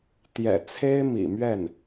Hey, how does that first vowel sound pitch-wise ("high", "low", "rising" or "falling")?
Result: low